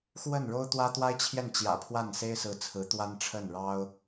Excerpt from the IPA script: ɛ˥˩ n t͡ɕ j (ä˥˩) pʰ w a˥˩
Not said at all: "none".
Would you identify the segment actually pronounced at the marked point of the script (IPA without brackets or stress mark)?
ä̰˨˩